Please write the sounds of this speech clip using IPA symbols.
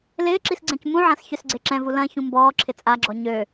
l ɪː ǁ i s ɡ͡ǀ ɛ̃ c m ũ ʕ ã s ç ø s ɡ͡ǀ e ǁ ɛ̃ v u l ɐ̃ ç ũ m b ɔː ǁʰ ɪ t͡sʼ a ɡ͡ǁ ɔ ɲ ø

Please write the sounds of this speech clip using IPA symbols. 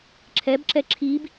ǁʰ ɛ b ǁ ɛ ǁʰ i b

